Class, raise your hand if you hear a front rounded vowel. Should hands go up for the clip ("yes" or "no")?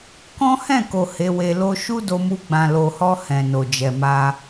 no